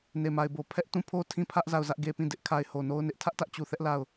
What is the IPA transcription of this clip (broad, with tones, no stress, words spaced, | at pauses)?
ne˨ma˨ɪ̯bo˨ pʰɛ˦ʔ tũ˦˨pʰo˦ tʰĩ˦˨pʰä˦ʔ za˦˨ʊ̯zä˦ʔɡe˦ pĩ˦˨dɪ˦ʔkʰa˦ɪ̯ ho˨no˦ʊ̯nɪ˦ʔ tʰä˦ʔtä˦ʔ t͡ɕu˨θɛ˦ʔ la˦˨ʊ̯